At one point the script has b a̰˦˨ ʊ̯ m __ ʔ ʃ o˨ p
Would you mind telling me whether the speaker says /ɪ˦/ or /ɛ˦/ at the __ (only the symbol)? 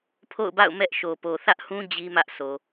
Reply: ɛ˦